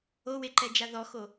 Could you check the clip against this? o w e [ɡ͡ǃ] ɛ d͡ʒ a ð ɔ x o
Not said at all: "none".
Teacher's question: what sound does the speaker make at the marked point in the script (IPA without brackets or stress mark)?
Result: ǃ